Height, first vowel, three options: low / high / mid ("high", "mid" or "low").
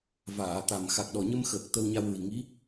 low